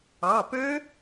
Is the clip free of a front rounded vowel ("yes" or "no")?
no